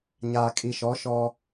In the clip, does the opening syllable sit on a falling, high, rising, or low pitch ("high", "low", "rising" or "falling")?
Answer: low